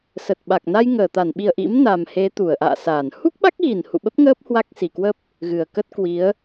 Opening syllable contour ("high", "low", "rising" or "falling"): low